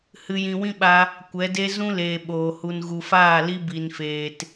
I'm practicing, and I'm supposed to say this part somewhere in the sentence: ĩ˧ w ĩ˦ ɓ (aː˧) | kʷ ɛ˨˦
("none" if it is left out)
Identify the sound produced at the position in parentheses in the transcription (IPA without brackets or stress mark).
a˧